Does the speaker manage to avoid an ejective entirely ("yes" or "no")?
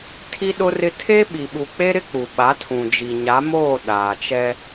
yes